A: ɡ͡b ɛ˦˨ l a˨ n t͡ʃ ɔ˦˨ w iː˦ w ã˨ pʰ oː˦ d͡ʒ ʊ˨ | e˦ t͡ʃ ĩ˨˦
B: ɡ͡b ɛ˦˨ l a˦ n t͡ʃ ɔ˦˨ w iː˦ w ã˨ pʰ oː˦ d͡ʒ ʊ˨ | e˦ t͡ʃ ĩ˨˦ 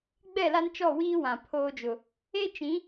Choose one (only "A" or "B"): B